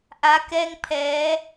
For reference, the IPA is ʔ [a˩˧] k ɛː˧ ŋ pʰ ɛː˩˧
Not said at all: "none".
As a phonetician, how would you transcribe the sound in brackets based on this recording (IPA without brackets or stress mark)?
a˩˧